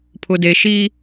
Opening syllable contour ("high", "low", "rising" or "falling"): low